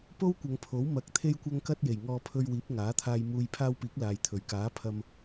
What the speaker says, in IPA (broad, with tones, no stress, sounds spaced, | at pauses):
p o˥ w kʷ ɐ˨˧ ŋ pʰ o˨˥ w m ɐ˧ k̚ t̪ʰ e˧ j kʷ ɐ˧ ŋ k ɐ˧ t̚ j e˨˩ j ŋ ɔː˧ pʰ ɵ˧ ɥ w iː˨˥ p̚ ŋ aː˨˥ t̪ʰ aː˧ j m uː˧ j pʰ aː˧ w p iː˨˥ k̚ l aː˨ j t̪ʰ ɵ˨˩ ɥ k aː˨˥ pʰ ɐ˧ m